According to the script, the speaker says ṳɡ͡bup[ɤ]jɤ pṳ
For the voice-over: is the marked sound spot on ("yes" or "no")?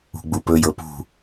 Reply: no